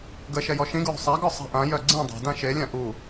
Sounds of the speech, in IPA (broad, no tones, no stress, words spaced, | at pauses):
ɡəʃɛ jɔʃĩɡɹṳ sˤaɡɔ sˤa̤ʔãjœ ɡ͡ǀĩ dˤa̤dã ʃelʲã ʔu